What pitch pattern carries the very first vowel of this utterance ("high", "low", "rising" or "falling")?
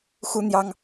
high